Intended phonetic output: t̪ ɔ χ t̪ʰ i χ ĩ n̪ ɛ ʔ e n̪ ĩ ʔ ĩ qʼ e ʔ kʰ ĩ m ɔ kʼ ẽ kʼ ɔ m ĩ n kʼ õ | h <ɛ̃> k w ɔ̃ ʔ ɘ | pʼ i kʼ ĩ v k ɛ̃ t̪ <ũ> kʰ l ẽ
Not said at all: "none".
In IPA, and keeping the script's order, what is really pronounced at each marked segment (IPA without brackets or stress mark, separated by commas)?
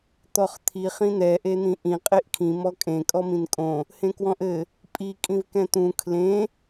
ẽ, ũ